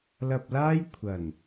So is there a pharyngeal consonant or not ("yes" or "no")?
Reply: no